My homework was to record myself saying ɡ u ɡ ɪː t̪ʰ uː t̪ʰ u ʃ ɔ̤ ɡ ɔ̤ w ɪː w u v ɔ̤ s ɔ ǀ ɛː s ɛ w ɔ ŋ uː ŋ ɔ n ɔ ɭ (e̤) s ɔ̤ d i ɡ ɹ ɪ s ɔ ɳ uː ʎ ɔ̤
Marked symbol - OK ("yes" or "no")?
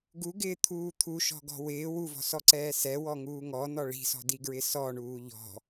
no